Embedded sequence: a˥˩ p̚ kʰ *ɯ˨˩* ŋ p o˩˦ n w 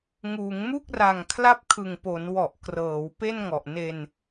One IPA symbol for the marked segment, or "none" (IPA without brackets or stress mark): ɯ˨˩